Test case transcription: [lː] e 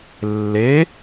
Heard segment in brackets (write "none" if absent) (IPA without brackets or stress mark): lː